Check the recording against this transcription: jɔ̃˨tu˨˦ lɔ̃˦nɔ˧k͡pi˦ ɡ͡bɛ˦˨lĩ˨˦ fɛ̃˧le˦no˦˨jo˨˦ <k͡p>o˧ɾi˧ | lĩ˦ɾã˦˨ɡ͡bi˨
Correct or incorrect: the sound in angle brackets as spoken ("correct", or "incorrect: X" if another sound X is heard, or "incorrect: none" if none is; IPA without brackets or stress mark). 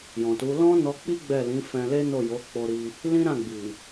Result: correct